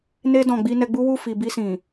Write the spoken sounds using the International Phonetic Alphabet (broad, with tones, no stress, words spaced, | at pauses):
ne˧dɔ̃˨ ɡ͡bi˧nɛ˧ɡ͡bu˦ wu˦˨ fi˨bi˧sĩ˨